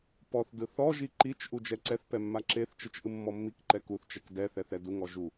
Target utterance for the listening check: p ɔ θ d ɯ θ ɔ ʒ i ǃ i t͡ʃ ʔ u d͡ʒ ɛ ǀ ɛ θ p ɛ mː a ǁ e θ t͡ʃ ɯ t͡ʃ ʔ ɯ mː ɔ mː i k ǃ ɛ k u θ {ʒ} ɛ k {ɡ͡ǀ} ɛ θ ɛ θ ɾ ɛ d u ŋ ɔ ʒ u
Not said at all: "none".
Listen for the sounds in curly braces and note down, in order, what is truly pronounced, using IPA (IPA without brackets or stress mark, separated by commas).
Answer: t͡ʃ, d